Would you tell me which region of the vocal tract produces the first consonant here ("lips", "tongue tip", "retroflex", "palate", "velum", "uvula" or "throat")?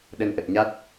tongue tip